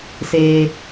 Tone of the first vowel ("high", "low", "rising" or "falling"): low